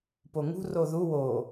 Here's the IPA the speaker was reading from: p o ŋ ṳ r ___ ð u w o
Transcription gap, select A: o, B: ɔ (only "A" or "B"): A